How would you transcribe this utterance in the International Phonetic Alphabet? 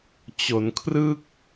t͡ɕo˩˦nkʰrɯ˥˩k̚

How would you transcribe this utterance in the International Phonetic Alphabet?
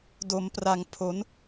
do˩˦mpra˨˩ŋ pʰo˩˦n

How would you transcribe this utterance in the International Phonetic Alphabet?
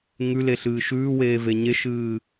ŋʉle ɬɨːʃʉːweː veɲeʃɨː

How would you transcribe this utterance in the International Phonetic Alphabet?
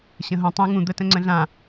ɕə̃ɦũ tˤũ ŋũ d̪ətə̃ŋ͡ǀə̃ɮã

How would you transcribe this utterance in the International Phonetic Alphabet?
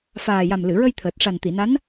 faː˨˩ja˨˩mlɨ˨˩˨ɹə˧j t̪ʰəː˨˩t̚ʂa˨˩nt̪i˨˩˨na˧˥n

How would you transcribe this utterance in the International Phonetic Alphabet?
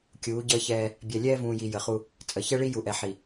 kʲuː˨˦ɟəː˦çɛː˦ | bʲɛ˨ lʲɛː˦vũː˨ji˨ jə˨χu˦ | t͡sʼə˨ çɛ˦ɭi˦ ju˨ʔɛ˨ ħi˨

